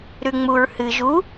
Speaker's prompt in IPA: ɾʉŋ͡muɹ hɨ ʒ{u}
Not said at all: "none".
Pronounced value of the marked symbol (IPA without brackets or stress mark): u